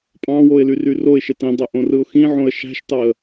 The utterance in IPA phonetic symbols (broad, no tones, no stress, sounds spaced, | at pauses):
pʼ ɑ̃ w o ɪ̯ l y r y r o ɪ̯ ʃ e t ĩ dˤ ø ʔ õ r ɯ ʊ̯ x ĩ ʕ õ ə̯ ʃ æ̤ ʃ t ɑ ə̯